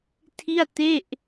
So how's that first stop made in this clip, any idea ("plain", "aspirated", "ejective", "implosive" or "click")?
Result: aspirated